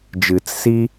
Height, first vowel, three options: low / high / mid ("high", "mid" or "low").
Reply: high